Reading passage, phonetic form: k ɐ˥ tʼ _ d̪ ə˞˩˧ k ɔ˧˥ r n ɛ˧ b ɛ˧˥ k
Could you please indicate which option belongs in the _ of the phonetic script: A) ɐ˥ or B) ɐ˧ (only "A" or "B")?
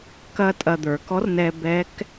B